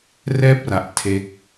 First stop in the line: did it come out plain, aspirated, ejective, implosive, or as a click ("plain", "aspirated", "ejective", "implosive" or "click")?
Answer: plain